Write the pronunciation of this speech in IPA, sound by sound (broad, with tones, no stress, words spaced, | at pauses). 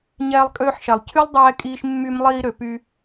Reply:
ɲɛː˧lˠkʼøː˧ħʃɛ˨lˠ cʰy˦lˠdˤɛː˧kʼiː˧ʃ mːy˧mlˠiː˧ ɾø˨py˧